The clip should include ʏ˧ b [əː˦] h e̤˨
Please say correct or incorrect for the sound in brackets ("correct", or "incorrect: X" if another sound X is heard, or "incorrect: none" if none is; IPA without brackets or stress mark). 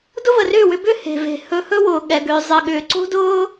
incorrect: ʏː˦